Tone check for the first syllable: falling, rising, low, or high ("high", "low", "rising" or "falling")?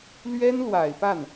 high